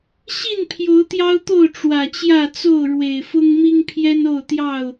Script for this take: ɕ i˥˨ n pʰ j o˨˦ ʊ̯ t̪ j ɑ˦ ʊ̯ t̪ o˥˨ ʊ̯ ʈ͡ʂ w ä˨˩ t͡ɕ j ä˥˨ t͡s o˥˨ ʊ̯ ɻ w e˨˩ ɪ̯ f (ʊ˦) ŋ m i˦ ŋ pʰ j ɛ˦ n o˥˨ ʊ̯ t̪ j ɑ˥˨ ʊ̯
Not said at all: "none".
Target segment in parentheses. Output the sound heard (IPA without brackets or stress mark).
ʊ˦